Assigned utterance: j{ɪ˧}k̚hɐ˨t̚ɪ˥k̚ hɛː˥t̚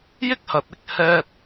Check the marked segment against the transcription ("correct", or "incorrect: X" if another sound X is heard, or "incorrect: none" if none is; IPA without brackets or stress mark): incorrect: ɪ˥